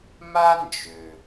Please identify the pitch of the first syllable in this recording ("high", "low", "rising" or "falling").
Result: high